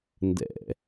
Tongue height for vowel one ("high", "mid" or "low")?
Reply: mid